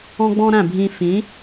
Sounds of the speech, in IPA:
ɔ̃˦ ɡ͡b ɔ̃˦ ɾ æ̃˥˨ bʱ ĩ˦ f ĩ˨˥

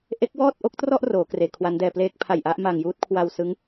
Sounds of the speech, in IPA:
ʔ e˦˥ k̚ w ɔː˥˩ t̚ ʔ o˦˥ k̚ t r ɔ˥˩ ʔ r oː˩˦ k r eː˩˦ kʰ w a˦˥ n d ɛː˧ p l eː˥˩ k̚ pʰ a˨˩ j ʔ a˥˩ ʔ m a˨˩ ŋ j uː˥˩ t̚ kʰ w a˧ w s ɯ˦˥ ŋ

